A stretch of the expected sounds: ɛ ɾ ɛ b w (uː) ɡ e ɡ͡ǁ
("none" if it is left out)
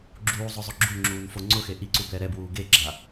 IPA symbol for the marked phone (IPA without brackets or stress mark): uː